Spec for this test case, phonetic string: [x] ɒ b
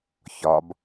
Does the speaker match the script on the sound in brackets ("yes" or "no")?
no